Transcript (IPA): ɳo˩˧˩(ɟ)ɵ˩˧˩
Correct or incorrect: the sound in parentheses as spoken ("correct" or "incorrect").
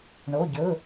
correct